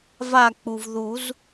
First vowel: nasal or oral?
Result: oral